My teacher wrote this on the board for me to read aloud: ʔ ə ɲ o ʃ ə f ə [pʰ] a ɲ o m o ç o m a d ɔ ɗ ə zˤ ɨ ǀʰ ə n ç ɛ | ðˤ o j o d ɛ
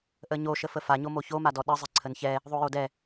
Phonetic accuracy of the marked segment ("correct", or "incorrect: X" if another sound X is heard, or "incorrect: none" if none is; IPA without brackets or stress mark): incorrect: f